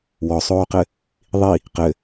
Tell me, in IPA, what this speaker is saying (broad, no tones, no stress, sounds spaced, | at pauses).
w ɔ sˤ oː q ɘ | ðˤ i | q ɘ